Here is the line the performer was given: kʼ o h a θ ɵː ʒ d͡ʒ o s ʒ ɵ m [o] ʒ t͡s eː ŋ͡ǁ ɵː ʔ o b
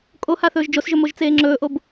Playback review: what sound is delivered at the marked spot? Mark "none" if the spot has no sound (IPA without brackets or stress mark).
o